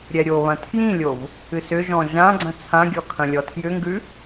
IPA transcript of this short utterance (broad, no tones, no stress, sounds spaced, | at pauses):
ɾʲ ɛ ɾʲ o β ɐ̃ tʰ j ĩ lʲ o v | ɨ s ʏ ʒ ɔ̃ ʒ ã ɡ͡ǀ ɐ̃ t͡sʰ ã ɡʲ ɔ kʰ ɐ̃ lʲ ɔ tʰ j ʏ ŋ ɡ ʉ